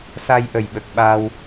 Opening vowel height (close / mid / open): open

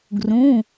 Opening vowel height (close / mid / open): close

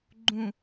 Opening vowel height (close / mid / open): close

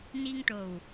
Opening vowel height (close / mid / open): close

